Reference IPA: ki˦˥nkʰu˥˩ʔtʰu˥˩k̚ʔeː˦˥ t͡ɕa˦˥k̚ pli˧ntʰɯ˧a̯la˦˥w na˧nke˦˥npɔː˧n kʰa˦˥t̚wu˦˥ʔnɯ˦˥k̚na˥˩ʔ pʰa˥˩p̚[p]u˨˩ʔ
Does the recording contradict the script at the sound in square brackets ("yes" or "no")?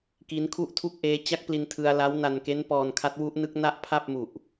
yes